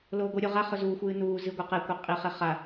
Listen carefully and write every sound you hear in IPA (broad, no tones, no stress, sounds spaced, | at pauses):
l oː ɡʷ ɨ ɾʲ o ʁ a χ ɵ z uː xʷ ɨː n uː z ɨ ɡʷ ɐ q e kʷ a qʼ i χ e χ a